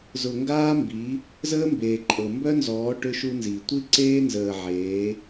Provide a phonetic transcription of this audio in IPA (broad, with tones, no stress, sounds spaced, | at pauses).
z ʊ˨ ŋ ɡ aː˦ m b i˨˦ | z əː˦ m b eː˨ ǃʼ ɤ˨ m b œ˦ n z ɔː˨˦ ʈ ʏ˦ ʃ u˦ n z i˨ tʷ i˦ ǀ eː˦ n z əː˨ ʕ eː˨˦